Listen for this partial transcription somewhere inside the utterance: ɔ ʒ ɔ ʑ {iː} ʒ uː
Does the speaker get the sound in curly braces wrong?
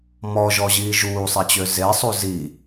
no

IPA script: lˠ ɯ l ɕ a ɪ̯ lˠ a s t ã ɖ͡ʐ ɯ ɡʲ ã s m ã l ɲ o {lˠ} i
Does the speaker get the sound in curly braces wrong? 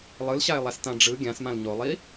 no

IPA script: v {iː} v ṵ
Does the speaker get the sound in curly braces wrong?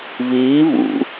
no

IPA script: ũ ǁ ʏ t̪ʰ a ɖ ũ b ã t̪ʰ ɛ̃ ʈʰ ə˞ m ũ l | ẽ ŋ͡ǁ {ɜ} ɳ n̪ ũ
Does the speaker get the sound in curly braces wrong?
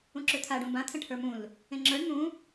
yes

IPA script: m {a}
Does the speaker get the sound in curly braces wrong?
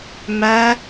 yes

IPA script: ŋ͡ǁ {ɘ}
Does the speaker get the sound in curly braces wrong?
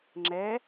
yes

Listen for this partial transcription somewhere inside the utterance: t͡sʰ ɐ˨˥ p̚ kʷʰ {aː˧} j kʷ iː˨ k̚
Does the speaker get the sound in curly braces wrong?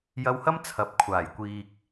yes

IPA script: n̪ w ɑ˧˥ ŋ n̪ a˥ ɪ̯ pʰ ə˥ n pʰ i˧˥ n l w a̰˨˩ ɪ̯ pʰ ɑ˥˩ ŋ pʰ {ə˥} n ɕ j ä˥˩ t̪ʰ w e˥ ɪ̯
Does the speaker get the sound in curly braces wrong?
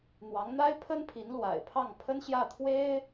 no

